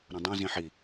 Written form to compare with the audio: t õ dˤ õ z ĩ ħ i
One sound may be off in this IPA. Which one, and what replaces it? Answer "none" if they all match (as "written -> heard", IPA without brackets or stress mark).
t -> ɾ